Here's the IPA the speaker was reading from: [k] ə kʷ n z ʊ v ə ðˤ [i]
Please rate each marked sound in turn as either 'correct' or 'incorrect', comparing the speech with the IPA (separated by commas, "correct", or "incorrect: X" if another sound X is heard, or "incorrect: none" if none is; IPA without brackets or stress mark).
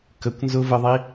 correct, correct